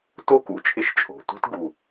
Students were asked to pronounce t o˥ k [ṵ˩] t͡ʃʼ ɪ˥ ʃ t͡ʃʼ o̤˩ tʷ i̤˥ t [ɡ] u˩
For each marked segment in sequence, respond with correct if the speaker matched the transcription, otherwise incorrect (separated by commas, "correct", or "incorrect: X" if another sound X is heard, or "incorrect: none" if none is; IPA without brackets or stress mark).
correct, correct